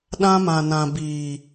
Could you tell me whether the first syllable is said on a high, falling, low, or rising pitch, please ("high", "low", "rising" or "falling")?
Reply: high